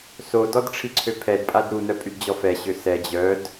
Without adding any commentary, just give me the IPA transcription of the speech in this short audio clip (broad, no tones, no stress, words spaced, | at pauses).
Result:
sodɔd ʈ͡ʂʰiǀʰøpʰɛdpʼad ɾunœ pʼydd͡ʑɔfɛɕø sɛ d͡ʑœd